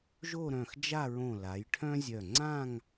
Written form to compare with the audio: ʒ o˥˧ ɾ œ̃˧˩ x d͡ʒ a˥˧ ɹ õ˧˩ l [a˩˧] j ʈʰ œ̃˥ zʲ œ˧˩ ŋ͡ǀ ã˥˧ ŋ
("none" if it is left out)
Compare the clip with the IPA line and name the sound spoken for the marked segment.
a˩˧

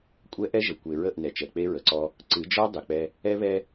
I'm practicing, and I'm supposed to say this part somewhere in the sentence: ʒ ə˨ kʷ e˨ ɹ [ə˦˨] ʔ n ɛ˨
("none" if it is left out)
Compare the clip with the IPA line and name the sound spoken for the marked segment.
ə˦˨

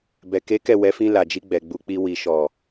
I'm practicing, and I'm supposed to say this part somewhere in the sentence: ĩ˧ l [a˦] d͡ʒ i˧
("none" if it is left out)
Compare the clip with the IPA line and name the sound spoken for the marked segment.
a˨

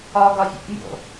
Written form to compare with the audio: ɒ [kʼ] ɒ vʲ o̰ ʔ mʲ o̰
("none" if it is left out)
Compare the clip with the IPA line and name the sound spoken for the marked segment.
ɡ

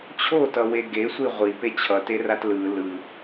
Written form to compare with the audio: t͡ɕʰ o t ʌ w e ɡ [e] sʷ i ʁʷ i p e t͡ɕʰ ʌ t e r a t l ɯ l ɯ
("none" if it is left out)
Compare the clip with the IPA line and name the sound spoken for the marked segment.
e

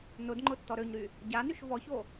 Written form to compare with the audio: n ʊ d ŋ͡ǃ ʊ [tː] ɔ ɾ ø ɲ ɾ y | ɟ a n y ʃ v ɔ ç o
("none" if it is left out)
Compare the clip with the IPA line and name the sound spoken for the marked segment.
tː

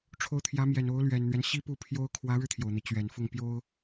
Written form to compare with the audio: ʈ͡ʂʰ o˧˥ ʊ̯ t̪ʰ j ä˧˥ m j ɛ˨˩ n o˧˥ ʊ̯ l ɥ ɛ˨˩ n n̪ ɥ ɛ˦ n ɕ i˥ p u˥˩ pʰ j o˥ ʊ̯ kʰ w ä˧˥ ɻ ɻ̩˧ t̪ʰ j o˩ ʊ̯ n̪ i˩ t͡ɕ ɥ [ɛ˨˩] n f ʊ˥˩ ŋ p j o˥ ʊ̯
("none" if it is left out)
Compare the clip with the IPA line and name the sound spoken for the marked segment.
ɛ˨˩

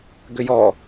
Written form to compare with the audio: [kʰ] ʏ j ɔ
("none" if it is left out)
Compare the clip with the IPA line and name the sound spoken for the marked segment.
ɡ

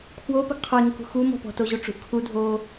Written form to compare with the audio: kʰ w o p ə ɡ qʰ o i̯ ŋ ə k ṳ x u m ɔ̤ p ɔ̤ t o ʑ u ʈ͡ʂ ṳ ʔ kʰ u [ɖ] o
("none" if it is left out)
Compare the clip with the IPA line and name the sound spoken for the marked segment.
dʱ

